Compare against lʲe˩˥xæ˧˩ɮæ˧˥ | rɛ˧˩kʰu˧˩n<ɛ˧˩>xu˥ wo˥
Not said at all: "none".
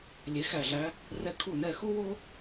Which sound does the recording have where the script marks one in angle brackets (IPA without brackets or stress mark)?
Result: ɛ˧˩